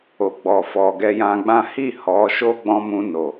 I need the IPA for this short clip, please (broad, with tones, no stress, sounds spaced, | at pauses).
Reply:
o˨ ɡ͡b ɔ˨ f ɔ˨ ɡ ɛ˧ j ã˧ ɡ͡b ã˦ h i˦˨ h ɔ˨˦ ʃ o˦ ɡ͡b ɔ̃˧ m ũ˧ n o˨